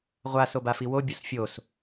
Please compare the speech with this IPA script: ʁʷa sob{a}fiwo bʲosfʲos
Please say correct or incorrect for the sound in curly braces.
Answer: correct